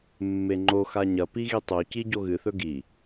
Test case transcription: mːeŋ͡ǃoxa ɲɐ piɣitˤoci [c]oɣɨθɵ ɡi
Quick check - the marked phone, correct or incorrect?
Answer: incorrect